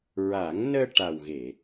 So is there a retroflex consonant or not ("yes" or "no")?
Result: yes